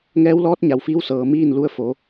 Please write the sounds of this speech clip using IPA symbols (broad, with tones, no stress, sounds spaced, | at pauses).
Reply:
ŋ ɛː˧˥ w l ɔː˧˥ t̚ ɲ a˩ w f iː˧ w s ɤː˩ m iː˥˨ n l u˧ ə̯ f o˩˧